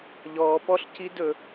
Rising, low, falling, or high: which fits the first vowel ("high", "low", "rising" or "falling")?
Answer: low